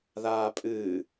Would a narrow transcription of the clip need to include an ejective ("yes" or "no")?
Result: yes